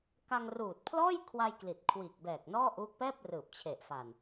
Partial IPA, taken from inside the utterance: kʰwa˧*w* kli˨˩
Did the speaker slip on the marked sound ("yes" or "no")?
yes